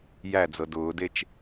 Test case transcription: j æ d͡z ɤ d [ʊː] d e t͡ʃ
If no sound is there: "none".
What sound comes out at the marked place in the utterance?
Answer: ʊː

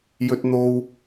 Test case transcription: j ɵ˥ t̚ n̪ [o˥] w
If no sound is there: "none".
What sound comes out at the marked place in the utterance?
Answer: o˥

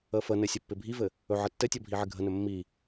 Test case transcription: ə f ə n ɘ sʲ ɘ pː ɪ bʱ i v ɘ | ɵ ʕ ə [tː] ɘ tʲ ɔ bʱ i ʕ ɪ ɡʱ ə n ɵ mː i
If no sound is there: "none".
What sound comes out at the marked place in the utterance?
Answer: tː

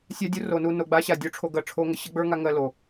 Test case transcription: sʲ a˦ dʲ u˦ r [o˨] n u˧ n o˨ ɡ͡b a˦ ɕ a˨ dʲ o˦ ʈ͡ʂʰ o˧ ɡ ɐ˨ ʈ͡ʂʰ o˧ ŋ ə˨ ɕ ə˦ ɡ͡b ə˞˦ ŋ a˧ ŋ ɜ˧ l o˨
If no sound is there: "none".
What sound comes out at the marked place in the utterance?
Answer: o˨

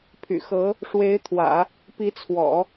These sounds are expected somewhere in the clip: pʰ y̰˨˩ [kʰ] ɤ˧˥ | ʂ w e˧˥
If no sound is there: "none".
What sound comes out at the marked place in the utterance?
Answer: x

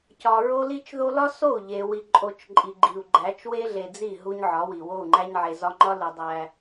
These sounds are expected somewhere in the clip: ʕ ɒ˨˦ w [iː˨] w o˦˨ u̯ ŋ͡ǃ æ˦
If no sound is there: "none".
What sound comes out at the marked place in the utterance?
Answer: i˨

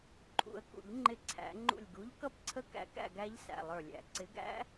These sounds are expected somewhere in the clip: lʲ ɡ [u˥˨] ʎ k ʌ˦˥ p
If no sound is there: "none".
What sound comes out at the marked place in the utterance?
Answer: u˨˥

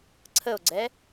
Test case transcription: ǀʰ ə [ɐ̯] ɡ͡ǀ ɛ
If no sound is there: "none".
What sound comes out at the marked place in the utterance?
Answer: o̯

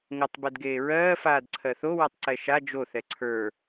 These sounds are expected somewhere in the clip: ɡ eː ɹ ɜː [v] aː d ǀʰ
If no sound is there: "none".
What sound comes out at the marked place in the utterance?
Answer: f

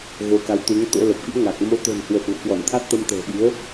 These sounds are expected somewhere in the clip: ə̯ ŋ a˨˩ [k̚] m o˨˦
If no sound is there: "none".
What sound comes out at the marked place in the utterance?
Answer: k̚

